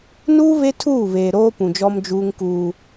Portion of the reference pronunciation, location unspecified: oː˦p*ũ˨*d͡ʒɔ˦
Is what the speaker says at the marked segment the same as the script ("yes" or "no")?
yes